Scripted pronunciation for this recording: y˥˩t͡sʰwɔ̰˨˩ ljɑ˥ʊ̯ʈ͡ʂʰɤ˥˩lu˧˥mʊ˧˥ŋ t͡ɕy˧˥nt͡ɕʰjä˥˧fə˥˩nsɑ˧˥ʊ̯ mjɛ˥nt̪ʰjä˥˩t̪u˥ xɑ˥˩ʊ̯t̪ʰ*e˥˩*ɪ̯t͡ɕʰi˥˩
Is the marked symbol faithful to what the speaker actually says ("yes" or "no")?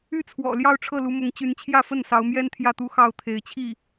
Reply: no